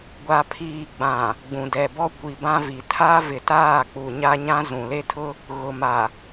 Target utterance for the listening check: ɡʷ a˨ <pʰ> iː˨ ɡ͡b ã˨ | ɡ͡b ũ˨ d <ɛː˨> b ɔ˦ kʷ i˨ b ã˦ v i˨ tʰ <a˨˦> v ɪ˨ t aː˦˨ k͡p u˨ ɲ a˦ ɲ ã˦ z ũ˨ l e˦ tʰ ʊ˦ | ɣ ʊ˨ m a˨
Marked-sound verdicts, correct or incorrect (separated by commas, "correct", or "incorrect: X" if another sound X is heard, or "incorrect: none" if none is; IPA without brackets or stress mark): correct, incorrect: ɛ˨, incorrect: a˦